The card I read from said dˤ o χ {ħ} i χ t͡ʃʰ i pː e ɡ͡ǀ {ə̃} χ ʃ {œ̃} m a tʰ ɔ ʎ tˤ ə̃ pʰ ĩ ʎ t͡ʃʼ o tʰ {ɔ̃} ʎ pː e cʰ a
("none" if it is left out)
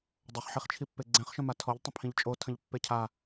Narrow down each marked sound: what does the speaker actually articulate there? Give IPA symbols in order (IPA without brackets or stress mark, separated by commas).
ħ, ɛ̃, œ̃, ə̃